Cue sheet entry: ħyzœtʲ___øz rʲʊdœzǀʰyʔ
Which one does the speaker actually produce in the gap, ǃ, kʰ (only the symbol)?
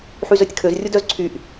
kʰ